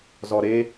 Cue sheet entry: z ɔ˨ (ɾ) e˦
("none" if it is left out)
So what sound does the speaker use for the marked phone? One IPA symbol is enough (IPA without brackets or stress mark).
ɾ